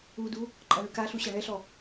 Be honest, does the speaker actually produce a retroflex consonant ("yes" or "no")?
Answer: yes